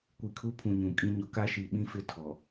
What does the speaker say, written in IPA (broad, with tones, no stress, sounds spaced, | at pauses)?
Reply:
kʷ i˨ kʰ u˦ pʰ ũ˨ ɲ ũ˨ kʼ ĩ˦ ɲ ʊ˨ k a˦ ʃ i˨ ɓ ĩ˦ f ɪ˦ tʰ ɔ˨